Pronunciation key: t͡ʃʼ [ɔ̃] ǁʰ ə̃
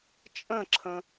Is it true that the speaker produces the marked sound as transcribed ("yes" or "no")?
no